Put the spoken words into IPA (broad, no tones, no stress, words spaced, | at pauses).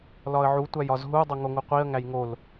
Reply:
lɒə̯ʕu tʷæjɒzɦu dˤoŋoŋuqʷiə̯ ŋæjŋol